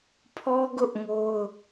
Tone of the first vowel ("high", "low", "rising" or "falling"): high